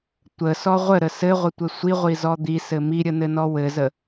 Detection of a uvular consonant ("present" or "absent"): present